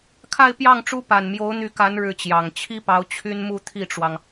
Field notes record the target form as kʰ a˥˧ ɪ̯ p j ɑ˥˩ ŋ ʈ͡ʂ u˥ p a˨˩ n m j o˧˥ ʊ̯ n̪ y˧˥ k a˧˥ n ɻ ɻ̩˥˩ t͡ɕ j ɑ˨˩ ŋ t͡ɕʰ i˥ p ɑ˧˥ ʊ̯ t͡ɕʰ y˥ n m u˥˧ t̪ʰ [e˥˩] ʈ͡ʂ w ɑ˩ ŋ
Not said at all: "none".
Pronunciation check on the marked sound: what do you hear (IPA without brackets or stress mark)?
i˥˩